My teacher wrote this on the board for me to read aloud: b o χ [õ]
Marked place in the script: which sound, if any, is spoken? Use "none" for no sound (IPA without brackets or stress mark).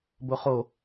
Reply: o